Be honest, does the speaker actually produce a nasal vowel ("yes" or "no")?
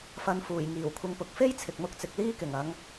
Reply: no